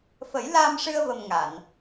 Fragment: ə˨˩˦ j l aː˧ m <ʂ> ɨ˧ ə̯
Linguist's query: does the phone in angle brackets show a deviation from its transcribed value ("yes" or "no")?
no